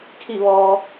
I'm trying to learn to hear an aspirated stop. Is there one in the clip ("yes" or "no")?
yes